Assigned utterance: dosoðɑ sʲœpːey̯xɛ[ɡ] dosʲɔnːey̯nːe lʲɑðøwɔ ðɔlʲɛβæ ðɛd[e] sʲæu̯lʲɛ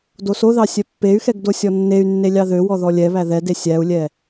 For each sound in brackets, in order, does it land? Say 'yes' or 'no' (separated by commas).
yes, yes